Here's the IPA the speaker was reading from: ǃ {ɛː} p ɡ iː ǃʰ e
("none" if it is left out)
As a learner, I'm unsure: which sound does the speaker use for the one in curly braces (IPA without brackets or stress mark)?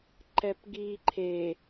ɛ